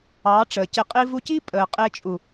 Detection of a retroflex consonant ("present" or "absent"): present